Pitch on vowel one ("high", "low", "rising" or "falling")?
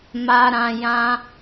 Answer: low